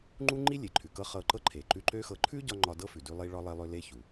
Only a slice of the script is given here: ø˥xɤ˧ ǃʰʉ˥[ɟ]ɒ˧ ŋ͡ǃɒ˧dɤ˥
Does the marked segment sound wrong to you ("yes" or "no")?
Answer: no